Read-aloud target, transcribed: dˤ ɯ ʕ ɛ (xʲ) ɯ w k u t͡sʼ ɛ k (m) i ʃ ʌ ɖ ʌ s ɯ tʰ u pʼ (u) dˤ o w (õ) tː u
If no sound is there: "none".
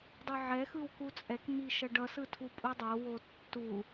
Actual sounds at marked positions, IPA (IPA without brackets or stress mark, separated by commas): x, m, u, o